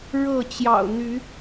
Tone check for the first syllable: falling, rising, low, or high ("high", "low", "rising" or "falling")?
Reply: falling